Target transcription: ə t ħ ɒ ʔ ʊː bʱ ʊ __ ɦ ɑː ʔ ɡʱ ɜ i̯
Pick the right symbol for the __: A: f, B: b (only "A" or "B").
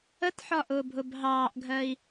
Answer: B